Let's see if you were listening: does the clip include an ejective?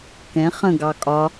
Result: yes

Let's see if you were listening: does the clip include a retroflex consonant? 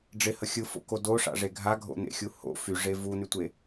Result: yes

